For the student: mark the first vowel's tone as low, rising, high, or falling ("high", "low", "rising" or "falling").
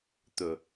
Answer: low